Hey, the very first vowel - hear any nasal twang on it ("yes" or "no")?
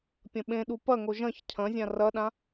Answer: yes